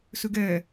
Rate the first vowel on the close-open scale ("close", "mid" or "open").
close